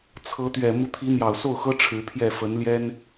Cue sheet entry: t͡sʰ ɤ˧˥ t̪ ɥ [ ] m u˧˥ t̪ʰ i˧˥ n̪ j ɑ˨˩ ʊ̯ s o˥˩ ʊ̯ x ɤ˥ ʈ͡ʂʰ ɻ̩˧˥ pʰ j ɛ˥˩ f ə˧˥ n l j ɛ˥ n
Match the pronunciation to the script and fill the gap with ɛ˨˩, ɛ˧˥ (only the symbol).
ɛ˨˩